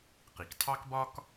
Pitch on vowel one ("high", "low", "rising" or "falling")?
low